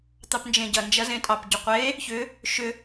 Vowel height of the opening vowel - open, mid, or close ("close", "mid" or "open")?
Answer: open